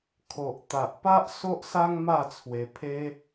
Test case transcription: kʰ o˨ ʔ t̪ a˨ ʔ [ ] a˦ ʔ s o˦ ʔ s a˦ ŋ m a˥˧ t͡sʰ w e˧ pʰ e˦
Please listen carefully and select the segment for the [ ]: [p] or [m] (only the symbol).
p